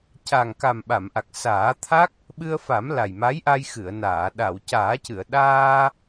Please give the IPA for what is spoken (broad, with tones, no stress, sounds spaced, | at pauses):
c a˨˩ ŋ k a˨˩ m ɓ a˨˩˨ m ʔ a˨˩ k̚ s aː˨˩˦ t̪ʰ a˦˥ k̚ | ɓ ɨ˧ ə̯ f a˨˩˦ m l a˨˩ j m a˧˥ j ʔ a˧ j x ɨ˨˩˨ ə̯ n aː˨˩˨ ɗ a˨˩˨ w c aː˨˩˦ c ɨ˨˩˨ ə̯ ɗ aː˧